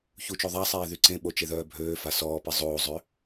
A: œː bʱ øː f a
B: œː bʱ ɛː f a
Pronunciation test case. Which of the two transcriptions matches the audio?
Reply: A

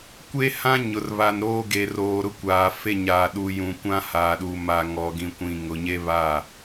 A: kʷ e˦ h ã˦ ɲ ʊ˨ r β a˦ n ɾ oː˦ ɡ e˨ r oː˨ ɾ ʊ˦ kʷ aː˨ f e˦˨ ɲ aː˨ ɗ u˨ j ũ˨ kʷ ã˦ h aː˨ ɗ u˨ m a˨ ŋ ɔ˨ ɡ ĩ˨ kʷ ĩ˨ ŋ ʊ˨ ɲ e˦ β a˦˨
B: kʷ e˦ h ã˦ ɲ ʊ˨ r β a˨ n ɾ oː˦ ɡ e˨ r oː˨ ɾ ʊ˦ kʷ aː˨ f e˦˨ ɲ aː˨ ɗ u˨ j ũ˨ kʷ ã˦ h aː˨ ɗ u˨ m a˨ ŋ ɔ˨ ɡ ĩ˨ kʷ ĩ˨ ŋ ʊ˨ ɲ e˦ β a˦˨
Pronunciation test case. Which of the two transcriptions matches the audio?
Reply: B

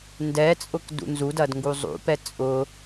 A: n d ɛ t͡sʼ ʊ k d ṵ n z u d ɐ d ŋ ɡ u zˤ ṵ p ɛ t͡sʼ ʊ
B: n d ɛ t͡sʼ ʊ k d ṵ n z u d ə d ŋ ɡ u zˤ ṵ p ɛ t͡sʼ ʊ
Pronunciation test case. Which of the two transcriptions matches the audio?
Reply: A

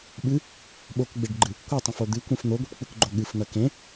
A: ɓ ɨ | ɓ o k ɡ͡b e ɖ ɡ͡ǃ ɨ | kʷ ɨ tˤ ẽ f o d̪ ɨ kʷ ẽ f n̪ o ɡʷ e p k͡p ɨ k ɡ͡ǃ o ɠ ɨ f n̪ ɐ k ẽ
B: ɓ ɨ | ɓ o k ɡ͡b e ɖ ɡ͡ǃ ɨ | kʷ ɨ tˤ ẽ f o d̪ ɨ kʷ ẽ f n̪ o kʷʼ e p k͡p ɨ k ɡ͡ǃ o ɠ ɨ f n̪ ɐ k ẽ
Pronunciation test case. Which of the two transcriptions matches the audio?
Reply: A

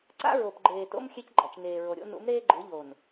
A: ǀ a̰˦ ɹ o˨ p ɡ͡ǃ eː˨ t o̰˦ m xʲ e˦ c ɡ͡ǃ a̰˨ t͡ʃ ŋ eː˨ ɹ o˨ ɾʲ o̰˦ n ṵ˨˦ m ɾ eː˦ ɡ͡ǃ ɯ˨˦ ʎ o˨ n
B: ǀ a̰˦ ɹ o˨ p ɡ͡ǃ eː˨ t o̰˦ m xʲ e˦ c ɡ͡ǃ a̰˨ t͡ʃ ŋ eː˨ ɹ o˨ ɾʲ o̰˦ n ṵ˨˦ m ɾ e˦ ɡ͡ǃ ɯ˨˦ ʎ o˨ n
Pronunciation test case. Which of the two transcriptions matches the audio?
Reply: A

